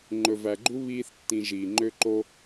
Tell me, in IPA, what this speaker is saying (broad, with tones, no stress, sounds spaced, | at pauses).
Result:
ŋ͡ǃ ɵ˨ v æ˨ ɡ͡ǃ u˦ β iː˦ θ tː ĩ˧ ʒ iː˨ ŋ͡ǃ ø˦ ǃ o˦